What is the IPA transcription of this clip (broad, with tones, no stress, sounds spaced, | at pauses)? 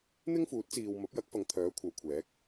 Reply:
n̪ ɪ˥ ŋ f uː˨˥ t̚ t͡s iː˨ w m ɐ˨˥ p̚ j ɐ˨˥ k̚ f ɐ˨˧ ŋ t̪ʰ œː˨˥ kʷʰ ɐ˨˧ w kʷʰ ɛː˨˥ k̚